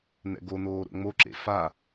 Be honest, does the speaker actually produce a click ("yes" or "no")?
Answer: yes